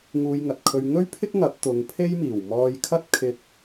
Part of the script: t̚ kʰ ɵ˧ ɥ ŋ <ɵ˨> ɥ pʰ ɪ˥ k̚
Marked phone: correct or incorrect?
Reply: incorrect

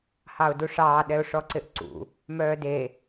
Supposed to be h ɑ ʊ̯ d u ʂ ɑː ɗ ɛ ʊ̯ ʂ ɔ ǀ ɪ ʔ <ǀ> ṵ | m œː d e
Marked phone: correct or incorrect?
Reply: correct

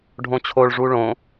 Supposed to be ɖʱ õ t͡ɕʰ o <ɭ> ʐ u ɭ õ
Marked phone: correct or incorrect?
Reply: correct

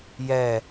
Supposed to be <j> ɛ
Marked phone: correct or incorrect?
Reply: correct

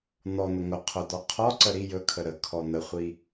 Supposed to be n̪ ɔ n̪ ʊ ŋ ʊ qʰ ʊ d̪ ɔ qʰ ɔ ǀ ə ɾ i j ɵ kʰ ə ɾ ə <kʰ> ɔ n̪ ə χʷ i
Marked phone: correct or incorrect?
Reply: correct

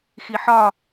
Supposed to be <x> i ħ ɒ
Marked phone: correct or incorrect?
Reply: correct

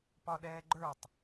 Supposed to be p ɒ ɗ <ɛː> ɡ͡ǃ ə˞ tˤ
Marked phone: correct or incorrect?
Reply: correct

